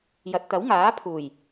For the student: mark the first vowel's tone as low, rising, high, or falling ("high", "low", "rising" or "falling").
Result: low